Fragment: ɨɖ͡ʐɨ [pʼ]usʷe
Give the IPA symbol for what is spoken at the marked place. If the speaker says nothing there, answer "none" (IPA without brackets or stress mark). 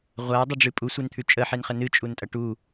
pʼ